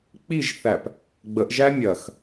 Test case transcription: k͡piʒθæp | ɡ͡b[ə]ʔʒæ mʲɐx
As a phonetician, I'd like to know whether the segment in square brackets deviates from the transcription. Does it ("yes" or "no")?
no